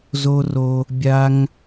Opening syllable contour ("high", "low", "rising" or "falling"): high